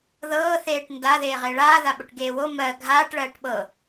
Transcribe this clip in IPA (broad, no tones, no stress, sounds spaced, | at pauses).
ð ɤː θ eː ʈ n d a ð eː ʁ e ɭ aː ð a ɓ ʊ ʈ ɡ eː w o m ɜ ɡʱ aː ʈ ɭ ɜː ʈ ɓ ɤ